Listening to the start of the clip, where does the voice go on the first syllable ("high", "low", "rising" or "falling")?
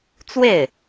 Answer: falling